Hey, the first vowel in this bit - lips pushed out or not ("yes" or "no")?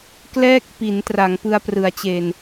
no